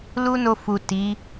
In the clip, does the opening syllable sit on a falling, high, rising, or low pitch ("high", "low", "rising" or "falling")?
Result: high